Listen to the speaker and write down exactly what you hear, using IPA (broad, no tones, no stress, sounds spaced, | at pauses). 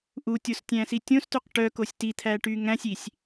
ʔ u tʲ o s tʲ æ̃ s i tʲ õ s t ʉ q ʈ œ k o sʲ t i t̪ʰ æ ʈ y ŋ æ̃ sʲ i sʲ